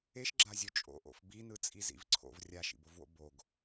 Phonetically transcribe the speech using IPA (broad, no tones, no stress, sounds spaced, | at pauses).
e ʃ ɡ͡ǁ a zʲ o t͡ʃʼ o̰ ʔ o̰ f b i n ɯ t͡sʼ i z ḭ v ǀʰ o̰ v rʲ a ʃ ḭ b o v w o̰ b o ɡ